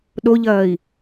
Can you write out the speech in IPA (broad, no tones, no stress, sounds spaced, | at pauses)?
ɗ o ʎ ɐː i̯